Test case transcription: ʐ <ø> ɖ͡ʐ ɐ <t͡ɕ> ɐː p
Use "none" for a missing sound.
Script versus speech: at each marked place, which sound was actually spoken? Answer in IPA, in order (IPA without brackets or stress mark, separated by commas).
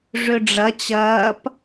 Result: ø, t͡ɕ